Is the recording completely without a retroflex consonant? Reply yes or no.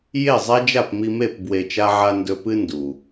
yes